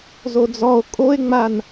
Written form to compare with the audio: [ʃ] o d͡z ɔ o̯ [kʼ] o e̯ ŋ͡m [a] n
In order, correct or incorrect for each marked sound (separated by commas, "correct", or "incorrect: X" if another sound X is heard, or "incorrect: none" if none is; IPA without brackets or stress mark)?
incorrect: z, correct, correct